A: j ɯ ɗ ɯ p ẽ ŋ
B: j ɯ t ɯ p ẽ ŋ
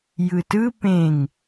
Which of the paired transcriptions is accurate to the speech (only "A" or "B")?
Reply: B